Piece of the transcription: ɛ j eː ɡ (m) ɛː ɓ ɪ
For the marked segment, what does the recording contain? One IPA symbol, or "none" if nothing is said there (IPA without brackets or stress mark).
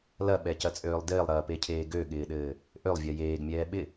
mʲ